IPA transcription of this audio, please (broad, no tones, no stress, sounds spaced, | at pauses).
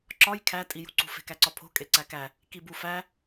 ǁ ɒ j kʰ æ tʼ i j ṳ ǀ ṳ f e̤ k æ ǀ ɒ pʰ o̤ kʼ e ǀ æ k æ | k i b u f æ